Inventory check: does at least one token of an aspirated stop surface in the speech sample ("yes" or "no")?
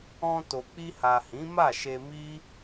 no